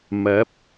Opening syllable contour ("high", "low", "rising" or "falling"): rising